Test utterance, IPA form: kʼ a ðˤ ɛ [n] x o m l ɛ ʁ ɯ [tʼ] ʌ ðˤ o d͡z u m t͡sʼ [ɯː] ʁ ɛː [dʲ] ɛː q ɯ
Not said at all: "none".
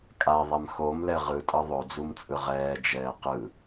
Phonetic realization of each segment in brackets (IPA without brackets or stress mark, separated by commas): m, tʼ, ɯ, d͡ʒ